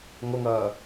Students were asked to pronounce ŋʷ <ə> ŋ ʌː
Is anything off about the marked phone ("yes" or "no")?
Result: no